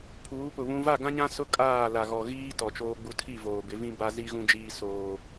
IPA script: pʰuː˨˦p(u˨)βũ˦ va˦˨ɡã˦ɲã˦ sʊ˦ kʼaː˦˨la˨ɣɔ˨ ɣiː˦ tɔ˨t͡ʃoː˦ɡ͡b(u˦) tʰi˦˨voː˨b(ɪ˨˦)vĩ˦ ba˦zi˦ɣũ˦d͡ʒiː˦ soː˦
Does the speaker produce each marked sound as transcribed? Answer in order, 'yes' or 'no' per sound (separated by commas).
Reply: no, yes, yes